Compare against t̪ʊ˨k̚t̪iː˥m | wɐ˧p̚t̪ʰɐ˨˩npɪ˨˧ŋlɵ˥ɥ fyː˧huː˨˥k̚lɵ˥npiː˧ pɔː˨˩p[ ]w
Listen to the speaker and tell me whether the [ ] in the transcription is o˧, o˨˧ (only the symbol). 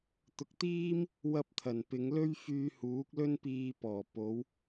o˨˧